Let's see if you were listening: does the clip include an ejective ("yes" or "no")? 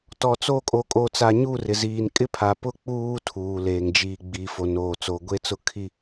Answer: yes